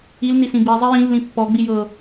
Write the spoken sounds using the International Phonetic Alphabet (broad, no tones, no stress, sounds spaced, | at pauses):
i l n i s ĩ b i zˤ i j ĩ lː ĩ pː ɔ ɡ͡b i j ɤ